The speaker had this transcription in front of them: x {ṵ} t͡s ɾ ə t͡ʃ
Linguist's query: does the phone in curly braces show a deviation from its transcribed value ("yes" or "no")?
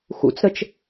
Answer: no